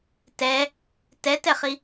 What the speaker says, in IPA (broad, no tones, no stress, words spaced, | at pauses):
tɛ | tɛtɛχi